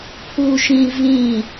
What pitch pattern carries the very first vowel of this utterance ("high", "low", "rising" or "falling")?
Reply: high